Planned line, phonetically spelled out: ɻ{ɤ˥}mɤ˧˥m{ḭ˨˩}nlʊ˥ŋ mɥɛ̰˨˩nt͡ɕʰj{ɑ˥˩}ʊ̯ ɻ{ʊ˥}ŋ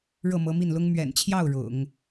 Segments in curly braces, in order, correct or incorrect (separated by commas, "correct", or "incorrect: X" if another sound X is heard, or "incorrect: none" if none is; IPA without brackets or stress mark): incorrect: ɤ˥˩, incorrect: i˥˩, correct, incorrect: ʊ̰˨˩˦